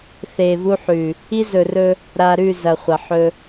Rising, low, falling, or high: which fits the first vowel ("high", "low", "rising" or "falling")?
low